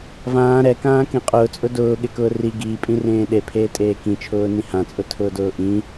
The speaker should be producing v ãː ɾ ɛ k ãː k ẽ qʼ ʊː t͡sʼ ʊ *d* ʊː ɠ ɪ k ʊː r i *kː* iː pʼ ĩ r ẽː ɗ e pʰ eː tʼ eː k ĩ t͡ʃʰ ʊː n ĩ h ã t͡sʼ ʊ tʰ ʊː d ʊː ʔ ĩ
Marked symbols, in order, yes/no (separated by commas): yes, no